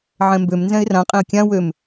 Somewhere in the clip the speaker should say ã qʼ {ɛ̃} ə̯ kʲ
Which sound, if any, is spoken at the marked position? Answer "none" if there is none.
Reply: ẽ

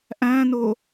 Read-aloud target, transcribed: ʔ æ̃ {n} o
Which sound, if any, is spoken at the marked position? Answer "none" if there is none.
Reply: n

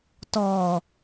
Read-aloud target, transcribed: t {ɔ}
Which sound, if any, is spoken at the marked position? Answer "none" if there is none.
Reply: ɔ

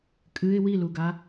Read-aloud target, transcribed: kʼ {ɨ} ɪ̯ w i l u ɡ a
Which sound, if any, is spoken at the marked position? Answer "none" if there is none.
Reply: ɨ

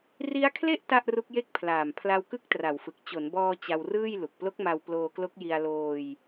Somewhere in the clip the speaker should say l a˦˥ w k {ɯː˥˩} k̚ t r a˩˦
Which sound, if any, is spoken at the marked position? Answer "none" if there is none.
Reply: ɯ˥˩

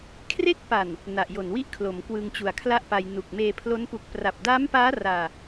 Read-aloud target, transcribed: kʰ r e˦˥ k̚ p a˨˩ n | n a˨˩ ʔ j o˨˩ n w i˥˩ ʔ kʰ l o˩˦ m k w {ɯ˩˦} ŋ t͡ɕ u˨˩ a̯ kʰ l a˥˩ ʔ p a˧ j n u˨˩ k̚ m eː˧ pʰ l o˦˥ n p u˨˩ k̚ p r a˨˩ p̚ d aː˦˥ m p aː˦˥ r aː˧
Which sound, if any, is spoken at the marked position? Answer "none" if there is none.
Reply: ɯ˧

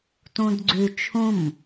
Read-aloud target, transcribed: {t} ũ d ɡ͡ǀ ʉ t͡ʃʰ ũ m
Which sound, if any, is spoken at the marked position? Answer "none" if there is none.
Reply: t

